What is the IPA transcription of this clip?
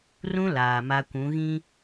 rũ˦ laː˨ma˦ kʷũ˨˦ɣĩ˦

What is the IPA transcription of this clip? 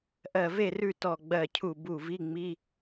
ʔɜ˧˩ve˥˨ rʉ˥˨tɔ˧˩ɡ͡bɜ˧˩cʰu˧˩ bu˧˩vi˧˥˧ŋ͡mi˧˥˧

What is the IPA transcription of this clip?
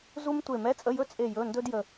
zu˥mtʷe˦˨ mɛ˧˥˧t͡sʼə˧˥˧jɵ˥ t͡sʼe˦˨jɵ˧˥˧ ndɵ˥d jə˦˨

